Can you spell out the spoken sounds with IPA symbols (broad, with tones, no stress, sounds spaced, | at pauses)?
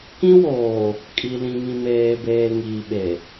k ĩ˦ w oː˨ | kʼ i˨ l ĩ˨ ŋ ĩ˨ m eː˨ b eː˨ ŋ iː˨ ɓ e˨